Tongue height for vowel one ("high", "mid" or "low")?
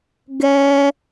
mid